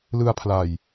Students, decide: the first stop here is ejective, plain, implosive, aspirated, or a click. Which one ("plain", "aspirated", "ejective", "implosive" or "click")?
aspirated